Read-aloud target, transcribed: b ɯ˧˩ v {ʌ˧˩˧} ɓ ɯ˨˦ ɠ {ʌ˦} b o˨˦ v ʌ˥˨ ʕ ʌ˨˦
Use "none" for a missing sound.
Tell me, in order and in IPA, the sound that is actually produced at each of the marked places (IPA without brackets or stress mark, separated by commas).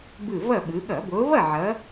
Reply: ʌ˥˨, ʌ˧˩˧